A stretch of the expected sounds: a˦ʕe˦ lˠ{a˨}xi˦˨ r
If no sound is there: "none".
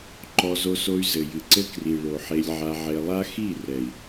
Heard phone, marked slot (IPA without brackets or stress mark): a˦